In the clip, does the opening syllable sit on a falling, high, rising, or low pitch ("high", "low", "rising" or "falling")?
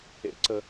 high